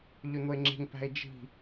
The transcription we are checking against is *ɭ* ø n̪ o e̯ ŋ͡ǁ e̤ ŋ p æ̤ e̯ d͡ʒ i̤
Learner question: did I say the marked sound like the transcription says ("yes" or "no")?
no